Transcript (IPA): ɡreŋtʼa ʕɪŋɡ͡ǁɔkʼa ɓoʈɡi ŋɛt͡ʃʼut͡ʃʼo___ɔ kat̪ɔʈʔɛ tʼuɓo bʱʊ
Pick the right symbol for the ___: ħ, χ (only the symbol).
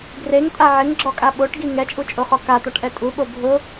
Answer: χ